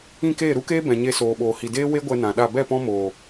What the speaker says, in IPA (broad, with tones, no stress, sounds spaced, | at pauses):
ĩ˦˨ k eː˦˨ ɾ u˦ k eː˦ b ɛ̃˨ ɲ e˧ s oː˨ ɓ oː˨ h i˨ d eː˦ w e˦ ɡʷ ɛ˧ n ã˨ ɗ a˦˨ b ɛ˦˨ p ɔ̃˦ m oː˨